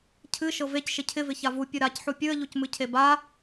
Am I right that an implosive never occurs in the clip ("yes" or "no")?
yes